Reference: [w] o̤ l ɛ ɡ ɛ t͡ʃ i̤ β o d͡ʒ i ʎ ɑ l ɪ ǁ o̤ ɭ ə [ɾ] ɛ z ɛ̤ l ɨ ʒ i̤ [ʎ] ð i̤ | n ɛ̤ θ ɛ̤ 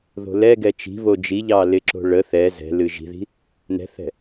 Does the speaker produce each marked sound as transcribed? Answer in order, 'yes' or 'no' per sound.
no, no, no

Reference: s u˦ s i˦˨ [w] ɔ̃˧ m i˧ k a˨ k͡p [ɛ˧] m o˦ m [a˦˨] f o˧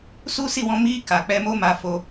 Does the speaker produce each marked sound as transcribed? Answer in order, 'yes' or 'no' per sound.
yes, yes, no

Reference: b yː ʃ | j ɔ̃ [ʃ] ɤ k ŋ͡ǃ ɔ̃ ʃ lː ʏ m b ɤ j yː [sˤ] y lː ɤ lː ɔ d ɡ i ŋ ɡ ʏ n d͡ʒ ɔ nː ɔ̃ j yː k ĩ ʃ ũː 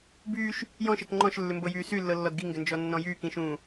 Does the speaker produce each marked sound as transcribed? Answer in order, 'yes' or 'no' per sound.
yes, no

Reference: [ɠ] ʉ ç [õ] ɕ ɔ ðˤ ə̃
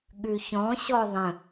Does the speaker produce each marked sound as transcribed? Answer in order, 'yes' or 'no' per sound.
yes, no

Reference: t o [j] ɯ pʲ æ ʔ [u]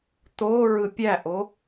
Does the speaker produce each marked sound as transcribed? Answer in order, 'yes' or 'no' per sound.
no, no

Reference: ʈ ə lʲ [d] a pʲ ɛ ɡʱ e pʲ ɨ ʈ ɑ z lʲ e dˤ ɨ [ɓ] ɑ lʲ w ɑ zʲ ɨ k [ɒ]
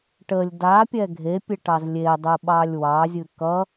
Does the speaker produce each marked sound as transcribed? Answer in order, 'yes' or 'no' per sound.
yes, yes, no

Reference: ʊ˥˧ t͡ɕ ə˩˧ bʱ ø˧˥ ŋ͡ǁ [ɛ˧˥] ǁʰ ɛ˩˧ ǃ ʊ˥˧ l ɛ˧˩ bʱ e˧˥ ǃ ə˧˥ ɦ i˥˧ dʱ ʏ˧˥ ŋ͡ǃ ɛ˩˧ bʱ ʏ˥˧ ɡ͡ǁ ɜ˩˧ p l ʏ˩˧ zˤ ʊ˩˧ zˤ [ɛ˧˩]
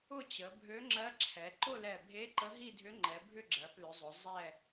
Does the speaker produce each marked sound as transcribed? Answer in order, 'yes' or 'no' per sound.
no, yes

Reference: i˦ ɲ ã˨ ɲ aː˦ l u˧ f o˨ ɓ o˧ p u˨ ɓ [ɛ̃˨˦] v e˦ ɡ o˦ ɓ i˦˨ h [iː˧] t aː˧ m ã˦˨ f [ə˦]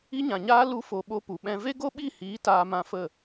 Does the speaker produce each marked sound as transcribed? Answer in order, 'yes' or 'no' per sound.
no, no, no

